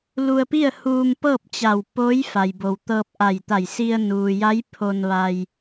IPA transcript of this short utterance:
l u˧ ə̯ p i˥˨ ə̯ h uː˧ m p ɤː˥˨ p̚ t͡ɕ a˧˩ w p oː˧˥ j f a˩ j b o˩ w t̪ ɤː˧ p̚ ʔ a˧˩ j t̪ a˧˩ j s i˧ ə̯ n uː˩ j a˧˥ j pʰ o˧ n ʋ a˧ j

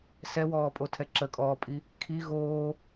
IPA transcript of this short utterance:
s ɛ w ɔː pʼ o tʰ ɛ ǁ ə kʼ ɔː pʼ i | kʰ i ɣ oː

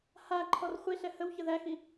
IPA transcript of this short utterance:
h a ǃʰ ɔ r χʷ i ɬ ɛ h ə w ç ə ð æ x i

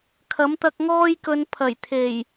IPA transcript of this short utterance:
kʰ ɐ˨˥ m t̪ ɐ˧ k̚ ŋ ɔː˥ j k ɵ˨˧ n pʰ ɐ˨˩ j t̪ʰ e˨˩ j

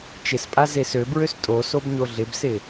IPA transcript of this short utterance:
t͡ʃ ɪ s pʼ a z e s ø b ɹ ø s tʼ o s o b ɲ o ɮ ɪ b s ɪ

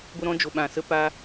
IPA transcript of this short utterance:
ɡʷ ə˧ ɾ ɔ̃˧ d͡ʒ o˨ ɓ ã˨ s ə˦ p a˦

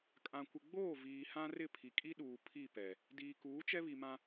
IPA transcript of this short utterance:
kʼ ã˨ kʷ ɪ˨ ɡ͡b oː˦˨ v iː˨ h ã˦ r ɪ˦˨ pʰ i˨ kʼ i˦ ɗ uː˨ pʰ i˦˨ p ɛ˨ | d iː˨ k uː˨˦ t͡ʃ ɛ˦ β i˨ m ã˦

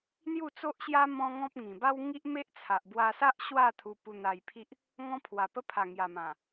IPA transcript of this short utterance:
n̪ j u˥˧ t͡s o˦ ʔ ɕ j a˦ m ɔ̃˦ ŋ ɔ̃˦ p̚ ŋ ĩ˨˩ b a˦ w ŋ i˦ ʔ m e˦ ʔ t͡sʰ a˨ ʔ b w a˧ s a˦ ʔ ɕ w a˥˧ t̪ʰ u˧ p u˧ n̪ a˧ j pʰ i˦ ʔ | ŋ ɔ̃˦ pʰ w a˨˩ p ə˦ pʰ a˨˩ ŋ j a˨˩ m ã˨˩

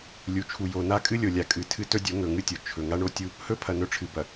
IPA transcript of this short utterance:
lʲ u˨ t͡ʃʰ u˨ j o˨ n a˦ kʼ ɨ˦ lʲ o˨ lʲ a˨ kʼ ɨ˨ tʰ ɨ˦ t ɵ˦ dʲ o˨˦ ŋ ɵ˨ ŋ ɨ˦ tʲ o˨ t͡ʃʰ ɵ˨ ŋ a˦ ɳ o˦ tʲ u˦ | h ɵ˦ pʰ ɐ˨ n ɵ˦ ʈ͡ʂʰ ɨ˨ b ɐ˨

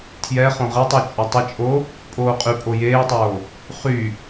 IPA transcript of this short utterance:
tʰ j ɛ χ õ ʁ e tˤ y t͡ʃʼ œ tˤ ə t͡ʃʼ o | pʼ oː qʼ y pʼ o j eː tˤ oː | χ y

